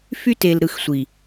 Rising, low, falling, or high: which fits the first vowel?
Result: high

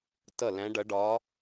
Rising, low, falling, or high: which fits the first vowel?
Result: falling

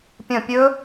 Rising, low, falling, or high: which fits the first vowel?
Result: falling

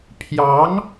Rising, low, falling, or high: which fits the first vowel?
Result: rising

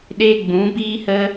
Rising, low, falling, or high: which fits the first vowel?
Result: high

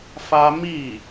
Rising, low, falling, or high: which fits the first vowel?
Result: high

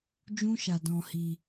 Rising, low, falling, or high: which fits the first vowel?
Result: high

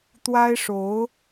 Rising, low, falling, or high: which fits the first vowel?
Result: high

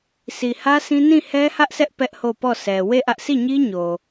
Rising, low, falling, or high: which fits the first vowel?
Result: low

